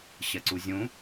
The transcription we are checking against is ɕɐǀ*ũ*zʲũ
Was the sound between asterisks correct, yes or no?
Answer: no